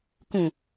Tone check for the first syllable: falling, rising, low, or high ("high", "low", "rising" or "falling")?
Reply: low